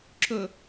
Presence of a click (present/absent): present